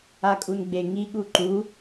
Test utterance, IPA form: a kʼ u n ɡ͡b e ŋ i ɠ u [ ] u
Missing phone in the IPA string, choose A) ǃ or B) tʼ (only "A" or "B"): A